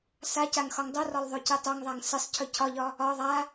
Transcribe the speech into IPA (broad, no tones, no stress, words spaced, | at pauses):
sacaŋ xɒŋdˤorɒlˠ ðˤocɨtˤoŋðˤaŋ sɨsˤcʰɵ cʰɒʎɒ | ɒ ðˤa